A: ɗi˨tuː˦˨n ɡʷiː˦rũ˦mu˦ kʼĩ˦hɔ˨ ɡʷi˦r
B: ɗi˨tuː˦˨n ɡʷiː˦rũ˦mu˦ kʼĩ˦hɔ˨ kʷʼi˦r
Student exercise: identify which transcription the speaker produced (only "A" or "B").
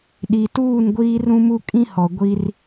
A